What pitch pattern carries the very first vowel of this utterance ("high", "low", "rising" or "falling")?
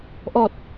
low